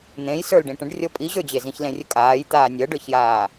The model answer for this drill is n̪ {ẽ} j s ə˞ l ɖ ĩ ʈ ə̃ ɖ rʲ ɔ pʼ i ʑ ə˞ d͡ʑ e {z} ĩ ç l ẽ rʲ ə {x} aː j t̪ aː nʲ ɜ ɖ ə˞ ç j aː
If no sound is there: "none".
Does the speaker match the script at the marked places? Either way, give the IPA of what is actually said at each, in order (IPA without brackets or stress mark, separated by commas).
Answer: ẽ, z, kʼ